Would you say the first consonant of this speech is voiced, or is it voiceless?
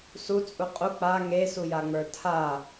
voiceless